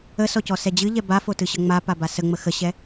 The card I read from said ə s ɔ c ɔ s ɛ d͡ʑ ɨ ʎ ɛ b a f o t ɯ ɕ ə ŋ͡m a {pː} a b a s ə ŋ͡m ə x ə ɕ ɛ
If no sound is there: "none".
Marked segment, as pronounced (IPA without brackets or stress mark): p